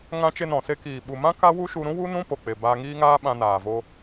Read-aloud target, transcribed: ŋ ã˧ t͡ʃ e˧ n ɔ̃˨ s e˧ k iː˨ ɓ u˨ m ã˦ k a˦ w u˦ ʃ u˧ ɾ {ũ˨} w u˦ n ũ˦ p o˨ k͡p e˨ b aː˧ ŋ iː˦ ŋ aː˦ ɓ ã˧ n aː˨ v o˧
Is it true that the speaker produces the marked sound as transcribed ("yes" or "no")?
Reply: no